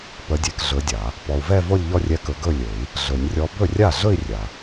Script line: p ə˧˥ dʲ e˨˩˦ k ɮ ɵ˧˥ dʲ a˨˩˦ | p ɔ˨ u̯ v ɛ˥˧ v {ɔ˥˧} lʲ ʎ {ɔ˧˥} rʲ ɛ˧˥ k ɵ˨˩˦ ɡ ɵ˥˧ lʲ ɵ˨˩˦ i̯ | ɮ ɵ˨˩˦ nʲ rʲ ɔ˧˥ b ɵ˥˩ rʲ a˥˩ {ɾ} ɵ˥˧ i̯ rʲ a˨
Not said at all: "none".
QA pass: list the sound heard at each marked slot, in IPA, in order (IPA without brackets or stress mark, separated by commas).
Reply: o˥˧, ɔ˥˧, ɮ